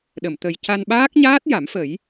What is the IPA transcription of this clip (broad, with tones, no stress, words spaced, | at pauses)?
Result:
ɗə˨˩˨mt̪ə˨˩j ca˧nɓaː˦˥k̚ɲaː˦˥t̚ ja˨˩˦mfə˨˩˦j